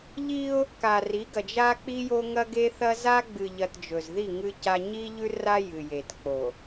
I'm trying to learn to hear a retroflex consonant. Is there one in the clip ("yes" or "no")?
no